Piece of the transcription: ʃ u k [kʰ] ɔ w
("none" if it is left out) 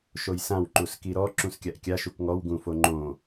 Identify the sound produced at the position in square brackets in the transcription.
ŋ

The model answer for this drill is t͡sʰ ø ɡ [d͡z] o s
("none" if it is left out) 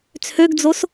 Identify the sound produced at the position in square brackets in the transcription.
d͡z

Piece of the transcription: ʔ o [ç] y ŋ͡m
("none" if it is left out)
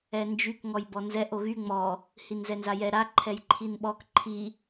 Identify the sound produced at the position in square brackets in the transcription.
ɣ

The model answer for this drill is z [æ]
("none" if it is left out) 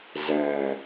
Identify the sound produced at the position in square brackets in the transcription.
æ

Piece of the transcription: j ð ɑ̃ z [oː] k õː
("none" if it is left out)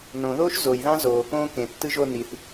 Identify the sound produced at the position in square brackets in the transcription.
oː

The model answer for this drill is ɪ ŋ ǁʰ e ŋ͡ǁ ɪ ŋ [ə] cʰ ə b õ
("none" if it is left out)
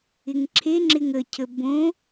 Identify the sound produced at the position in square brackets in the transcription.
ə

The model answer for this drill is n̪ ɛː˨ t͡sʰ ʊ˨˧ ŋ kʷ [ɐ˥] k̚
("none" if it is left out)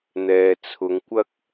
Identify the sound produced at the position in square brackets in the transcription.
ɐ˥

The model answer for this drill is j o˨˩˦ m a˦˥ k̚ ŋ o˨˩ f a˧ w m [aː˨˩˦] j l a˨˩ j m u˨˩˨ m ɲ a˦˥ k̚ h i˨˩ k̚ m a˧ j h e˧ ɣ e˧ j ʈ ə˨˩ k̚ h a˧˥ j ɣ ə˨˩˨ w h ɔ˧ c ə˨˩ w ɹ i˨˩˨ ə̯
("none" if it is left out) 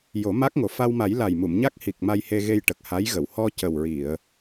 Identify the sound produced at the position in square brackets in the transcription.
a˨˩˦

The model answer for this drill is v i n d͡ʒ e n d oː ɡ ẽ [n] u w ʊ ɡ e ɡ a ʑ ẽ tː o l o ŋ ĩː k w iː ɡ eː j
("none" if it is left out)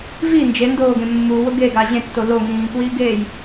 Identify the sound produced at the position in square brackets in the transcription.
mː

